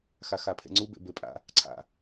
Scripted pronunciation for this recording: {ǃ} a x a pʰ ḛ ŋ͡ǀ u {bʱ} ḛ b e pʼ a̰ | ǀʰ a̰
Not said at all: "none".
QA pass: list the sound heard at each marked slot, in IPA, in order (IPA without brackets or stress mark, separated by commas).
x, b